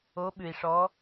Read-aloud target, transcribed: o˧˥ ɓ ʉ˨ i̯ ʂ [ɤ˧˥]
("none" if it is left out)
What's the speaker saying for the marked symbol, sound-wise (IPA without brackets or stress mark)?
ɔ˧˥